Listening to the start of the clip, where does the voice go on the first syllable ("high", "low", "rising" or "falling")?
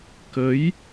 rising